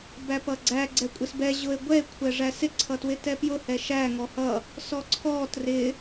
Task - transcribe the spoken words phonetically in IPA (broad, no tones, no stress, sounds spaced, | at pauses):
b æ p ʌ ɡ͡ǀ æ ɡ͡ǀ ɛ kʷʼ ɪ s b ɛ ʑ ʊ e̯ ɡʷ ɛ e̯ kʷʰ ɛ ʐ æ s ɪ ǀʰ ʌ t w ɪ t ɛ p j ʊ h ɛ ʃ æ ŋ ɔ h ʌ | s ɔ ǀʰ ɔ t r ɪ